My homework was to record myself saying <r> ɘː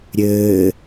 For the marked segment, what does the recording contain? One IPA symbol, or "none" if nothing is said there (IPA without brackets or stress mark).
ɾʲ